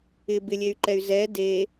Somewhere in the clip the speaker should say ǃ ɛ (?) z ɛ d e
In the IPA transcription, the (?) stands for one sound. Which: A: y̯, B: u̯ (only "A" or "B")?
A